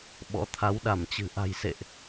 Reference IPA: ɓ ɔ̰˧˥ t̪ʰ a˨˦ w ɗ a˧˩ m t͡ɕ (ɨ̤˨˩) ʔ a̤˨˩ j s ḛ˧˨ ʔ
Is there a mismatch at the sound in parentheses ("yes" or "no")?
no